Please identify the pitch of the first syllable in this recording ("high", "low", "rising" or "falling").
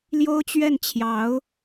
high